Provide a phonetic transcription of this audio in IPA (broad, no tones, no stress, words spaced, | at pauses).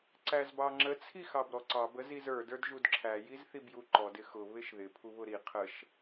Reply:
ǀæzbɑŋ͡ǁə t͡sʰixɑbɾɔǀɑb əzizə˞ də˞dʒudǁʰæ jizθibjuǃɔd ɪxʊ βɪʃðɪ pʰuβʊɾi qʰəʃ